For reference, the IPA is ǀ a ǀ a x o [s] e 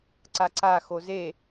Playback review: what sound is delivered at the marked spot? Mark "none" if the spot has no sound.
z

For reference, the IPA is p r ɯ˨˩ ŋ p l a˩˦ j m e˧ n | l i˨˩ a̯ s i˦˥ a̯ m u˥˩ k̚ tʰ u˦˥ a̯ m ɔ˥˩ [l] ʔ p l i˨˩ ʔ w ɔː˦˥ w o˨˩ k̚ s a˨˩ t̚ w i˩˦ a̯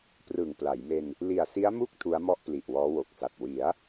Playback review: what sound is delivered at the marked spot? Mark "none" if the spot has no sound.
none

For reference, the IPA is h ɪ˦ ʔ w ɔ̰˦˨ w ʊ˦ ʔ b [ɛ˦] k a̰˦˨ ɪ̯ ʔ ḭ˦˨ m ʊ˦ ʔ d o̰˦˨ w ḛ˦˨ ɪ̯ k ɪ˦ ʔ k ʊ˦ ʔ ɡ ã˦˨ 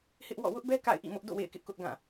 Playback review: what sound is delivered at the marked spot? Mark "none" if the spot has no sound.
ɛ˦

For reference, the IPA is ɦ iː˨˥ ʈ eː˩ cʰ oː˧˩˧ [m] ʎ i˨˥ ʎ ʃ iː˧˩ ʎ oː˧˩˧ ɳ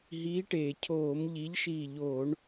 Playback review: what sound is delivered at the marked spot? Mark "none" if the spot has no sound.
m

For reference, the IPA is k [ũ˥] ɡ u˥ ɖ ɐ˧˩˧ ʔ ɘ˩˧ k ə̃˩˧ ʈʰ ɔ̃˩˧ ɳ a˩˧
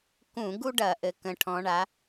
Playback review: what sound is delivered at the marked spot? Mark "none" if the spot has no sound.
ũ˧˩˧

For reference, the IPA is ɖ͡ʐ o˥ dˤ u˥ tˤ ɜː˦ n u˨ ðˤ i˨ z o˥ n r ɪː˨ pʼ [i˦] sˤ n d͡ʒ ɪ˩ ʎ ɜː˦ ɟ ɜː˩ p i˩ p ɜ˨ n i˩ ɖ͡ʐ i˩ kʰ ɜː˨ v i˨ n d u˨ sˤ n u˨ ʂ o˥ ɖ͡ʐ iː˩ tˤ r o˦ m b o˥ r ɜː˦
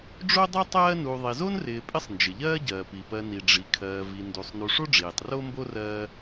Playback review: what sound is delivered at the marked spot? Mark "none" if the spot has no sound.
ɪ˦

